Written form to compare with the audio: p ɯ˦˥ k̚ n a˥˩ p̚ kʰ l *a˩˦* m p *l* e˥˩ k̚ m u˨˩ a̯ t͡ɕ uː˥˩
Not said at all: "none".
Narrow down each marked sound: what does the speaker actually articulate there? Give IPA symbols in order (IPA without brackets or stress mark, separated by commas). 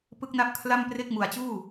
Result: a˥˩, r